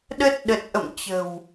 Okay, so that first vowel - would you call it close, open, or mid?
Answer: mid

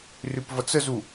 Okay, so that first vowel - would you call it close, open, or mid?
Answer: close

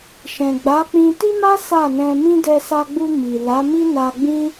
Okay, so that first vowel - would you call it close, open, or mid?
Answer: mid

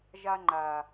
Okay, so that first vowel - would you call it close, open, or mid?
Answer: open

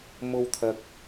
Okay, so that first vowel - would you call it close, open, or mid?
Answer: mid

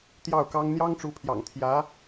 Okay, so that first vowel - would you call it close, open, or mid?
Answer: open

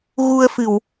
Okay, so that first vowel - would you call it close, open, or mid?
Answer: close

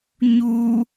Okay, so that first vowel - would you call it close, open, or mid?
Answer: close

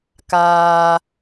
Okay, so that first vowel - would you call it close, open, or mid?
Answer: open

